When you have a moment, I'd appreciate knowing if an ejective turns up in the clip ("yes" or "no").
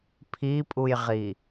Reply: yes